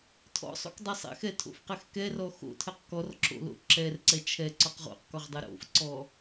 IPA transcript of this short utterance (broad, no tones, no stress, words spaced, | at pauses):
tʰɔ̰sˤo̰k dˤɛsˤɛ̰xɛ tʰo̰fqɛxkɛrɔ xo̰tʰɛq kɔrǁo̰ lo̰ǁɛrǀɛ t͡ʃʰɛ ǀɔqʁo̰qkɔʁ dˤoɾo̰fǀɔ